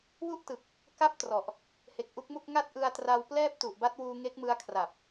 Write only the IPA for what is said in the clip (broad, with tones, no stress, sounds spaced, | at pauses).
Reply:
w u˥˩ ʔ t ɯ˨˩ k̚ | k a˥˩ p̚ t r ɔ˨˩ ʔ | h e˨˩ k̚ ʔ u˦˥ k̚ m u˥˩ k̚ ŋ a˥˩ t̚ ʔ ɯ˧ a̯ t r a˧ w p l ɛː˥˩ p̚ t u˨˩ ʔ b a˦˥ t̚ w uː˧ ŋ e˦˥ k̚ m ɯ˦˥ a̯ kʰ r a˨˩ p̚